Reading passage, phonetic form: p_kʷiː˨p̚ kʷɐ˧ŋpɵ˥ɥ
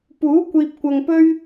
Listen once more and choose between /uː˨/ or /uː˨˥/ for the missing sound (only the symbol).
uː˨˥